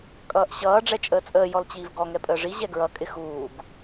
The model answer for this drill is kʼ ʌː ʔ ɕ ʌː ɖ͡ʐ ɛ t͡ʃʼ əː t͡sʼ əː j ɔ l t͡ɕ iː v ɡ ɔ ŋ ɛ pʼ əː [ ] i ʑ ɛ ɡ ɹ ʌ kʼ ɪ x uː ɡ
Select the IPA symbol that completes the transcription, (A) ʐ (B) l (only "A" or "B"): A